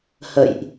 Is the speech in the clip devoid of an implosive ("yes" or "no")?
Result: yes